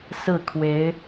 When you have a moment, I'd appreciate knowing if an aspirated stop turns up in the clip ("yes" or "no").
yes